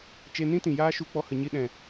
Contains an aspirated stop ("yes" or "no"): no